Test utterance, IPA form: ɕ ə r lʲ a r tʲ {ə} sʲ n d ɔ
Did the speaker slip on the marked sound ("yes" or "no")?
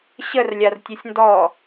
no